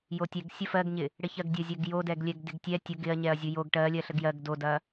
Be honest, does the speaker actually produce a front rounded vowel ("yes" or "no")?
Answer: no